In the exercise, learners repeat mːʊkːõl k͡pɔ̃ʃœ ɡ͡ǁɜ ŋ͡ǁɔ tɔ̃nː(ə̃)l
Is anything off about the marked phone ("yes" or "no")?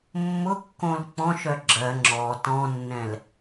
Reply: yes